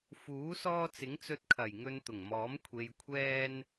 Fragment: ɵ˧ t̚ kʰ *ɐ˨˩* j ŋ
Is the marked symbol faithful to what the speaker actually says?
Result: yes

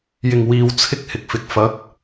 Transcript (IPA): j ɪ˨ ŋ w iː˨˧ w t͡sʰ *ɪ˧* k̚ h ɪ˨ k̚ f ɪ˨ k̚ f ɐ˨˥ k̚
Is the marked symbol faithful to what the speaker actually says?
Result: yes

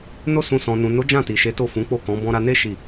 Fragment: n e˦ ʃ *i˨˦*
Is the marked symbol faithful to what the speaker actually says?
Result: no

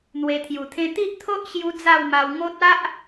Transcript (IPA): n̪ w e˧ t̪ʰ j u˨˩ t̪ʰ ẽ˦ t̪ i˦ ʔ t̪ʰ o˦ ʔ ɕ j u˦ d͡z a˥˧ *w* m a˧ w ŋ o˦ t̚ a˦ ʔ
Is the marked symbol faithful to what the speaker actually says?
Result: yes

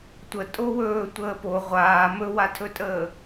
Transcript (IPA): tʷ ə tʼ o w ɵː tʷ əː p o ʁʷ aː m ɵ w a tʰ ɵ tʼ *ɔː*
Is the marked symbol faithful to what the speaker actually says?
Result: no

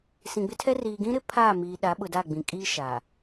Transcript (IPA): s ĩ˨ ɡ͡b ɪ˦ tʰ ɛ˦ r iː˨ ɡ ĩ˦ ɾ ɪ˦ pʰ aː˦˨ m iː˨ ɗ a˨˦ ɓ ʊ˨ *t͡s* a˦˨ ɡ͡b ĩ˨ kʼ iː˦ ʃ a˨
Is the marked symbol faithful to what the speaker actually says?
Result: no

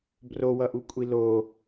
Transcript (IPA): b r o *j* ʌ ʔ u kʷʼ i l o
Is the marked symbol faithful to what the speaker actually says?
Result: no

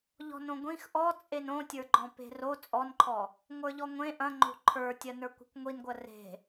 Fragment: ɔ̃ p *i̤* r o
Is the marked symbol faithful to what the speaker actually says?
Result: no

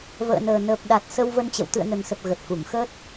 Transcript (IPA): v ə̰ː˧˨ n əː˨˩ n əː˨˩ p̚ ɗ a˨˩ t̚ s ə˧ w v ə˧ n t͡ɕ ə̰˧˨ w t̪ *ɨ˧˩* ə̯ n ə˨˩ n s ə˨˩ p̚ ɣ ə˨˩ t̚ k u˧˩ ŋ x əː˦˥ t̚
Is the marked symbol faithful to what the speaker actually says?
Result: no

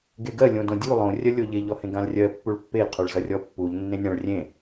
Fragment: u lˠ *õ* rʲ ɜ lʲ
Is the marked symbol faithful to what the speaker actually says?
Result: yes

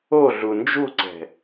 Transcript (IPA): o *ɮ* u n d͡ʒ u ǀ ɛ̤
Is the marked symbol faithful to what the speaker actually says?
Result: yes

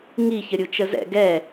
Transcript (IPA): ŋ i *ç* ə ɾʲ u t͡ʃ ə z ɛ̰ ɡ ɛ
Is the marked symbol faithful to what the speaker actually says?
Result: yes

